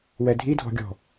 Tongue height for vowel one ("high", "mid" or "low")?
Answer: mid